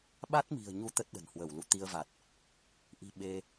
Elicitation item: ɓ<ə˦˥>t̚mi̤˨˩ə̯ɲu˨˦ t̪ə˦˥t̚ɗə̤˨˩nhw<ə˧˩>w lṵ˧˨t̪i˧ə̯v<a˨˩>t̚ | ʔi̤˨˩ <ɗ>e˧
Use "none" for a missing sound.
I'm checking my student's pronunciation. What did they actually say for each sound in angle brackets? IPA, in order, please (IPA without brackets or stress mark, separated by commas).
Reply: a˦˥, ə˧˩, a˨˩, ɓ